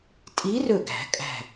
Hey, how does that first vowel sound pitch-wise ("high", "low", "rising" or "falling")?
rising